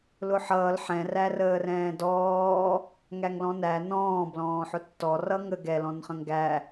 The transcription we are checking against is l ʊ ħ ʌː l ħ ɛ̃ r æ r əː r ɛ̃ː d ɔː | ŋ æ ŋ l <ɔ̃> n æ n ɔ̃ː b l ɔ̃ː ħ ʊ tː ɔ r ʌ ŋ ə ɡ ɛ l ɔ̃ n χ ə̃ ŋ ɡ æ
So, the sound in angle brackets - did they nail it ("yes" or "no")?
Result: yes